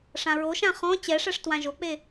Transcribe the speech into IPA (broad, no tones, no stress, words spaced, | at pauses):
ʂãɹoʃã χɔ̃ t͡ɕɛʂɛʂ twãʒok͡pe